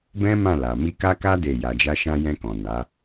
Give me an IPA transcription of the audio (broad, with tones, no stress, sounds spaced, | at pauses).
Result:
b ɛ̃˦ m ã˦˨ l a˨ m i˧ k a˦ k a˦ d e˦˨ j a˧ d͡ʒ a˦ ʃ ã˦ j ɛ̃˧ k ɔ̃˨ n a˨˦